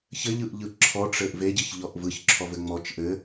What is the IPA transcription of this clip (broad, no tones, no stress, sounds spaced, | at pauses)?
ç ɘ ʎ ɯ ʔ ʎ ɯ ǁʰ ɔ ʈ͡ʂ ɘ ʔ v e ɟ ɘ ç ʎ ɔ ʔ v ɯ ç ǁʰ ɔ v ɘ ŋ͡m ɔ t͡ʃ ʔ ɘ